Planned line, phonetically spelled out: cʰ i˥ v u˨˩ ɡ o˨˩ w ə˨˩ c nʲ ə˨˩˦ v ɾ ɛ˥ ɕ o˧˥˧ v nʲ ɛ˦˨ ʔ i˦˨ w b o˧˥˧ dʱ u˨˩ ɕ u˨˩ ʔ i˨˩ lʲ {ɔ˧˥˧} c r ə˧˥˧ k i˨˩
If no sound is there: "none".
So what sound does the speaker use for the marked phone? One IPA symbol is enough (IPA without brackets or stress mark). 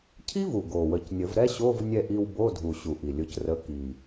ʊ˧˥˧